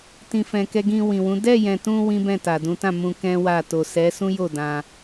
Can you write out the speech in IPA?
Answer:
tĩ˨fɛ̃˨ kɛ˧ɡĩ˧ wĩ˨wũ˨˦ dɛ˦˨jɛ̃˨tũ˧ wĩ˦bɛ̃˦˨ta˨dũ˨˦ tã˦˨mũ˧ kɛ̃˦wa˦˨ to˨sɛ˨˦sũ˦jo˦˨ dã˧

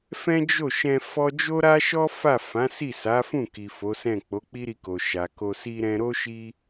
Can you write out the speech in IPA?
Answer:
fɛ̃˦d͡ʒo˦˨ʃɛ̃˧ fɔ˦ d͡ʒo˦ɾa˦ʃɔ˦ fa˦˨ fã˨˦si˦˨sa˨˦fũ˦˨ ki˨fo˨˦sɛ̃˦˨ k͡po˨˦k͡pi˦ɾi˧ko˨ ʃa˨ko˧si˦ɾɛ̃˦ ɾo˦ ʃi˦

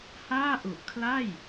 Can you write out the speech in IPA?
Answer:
haː˥˩ʔu˨˩ʔkʰla˥˩j

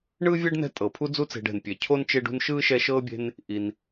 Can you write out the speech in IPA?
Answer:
ɳɯː˥vʲɛ˥ɖnɛ̤˦ tʼɤ˩pʰu˦d͡zu˦t͡se̤˨ɖ ɛ̤˩npʲe˩cʰo˥n t͡ʃe˦ɖṳ˦nʃɯː˥ ʃɛ˦ʃɤː˥bʲe̤˦n | ʔi˩n

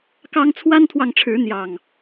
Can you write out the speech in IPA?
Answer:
kɑ˦ŋ t͡sʰwa˦nt̪ʰwɑ˨ŋʈ͡ʂʰɻ̩˨˦ n̪jɑ˨˩ŋ

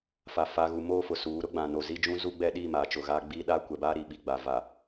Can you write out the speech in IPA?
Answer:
fa˨fa˨ɣu˨ moː˦fʊ˨suː˨˦ ɾʊ˦ɡ͡bã˨ no˨ zi˦ d͡ʒũ˦zu˦ ɡ͡bɛ˦ɗi˦˨ maː˨t͡ʃʊ˨ɣaː˦ɡ͡biː˦ ɗaː˦kʷɛ˨baː˦ ɾi˨ɓi˨ɡ͡ba˨ va˨

